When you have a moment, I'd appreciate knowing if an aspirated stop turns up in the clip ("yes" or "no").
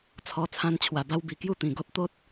yes